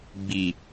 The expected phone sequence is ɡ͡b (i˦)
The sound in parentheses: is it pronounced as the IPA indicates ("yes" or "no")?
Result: no